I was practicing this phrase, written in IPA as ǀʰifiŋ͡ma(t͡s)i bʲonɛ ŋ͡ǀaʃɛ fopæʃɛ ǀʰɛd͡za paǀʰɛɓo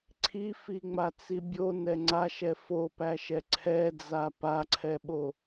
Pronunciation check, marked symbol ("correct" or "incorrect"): correct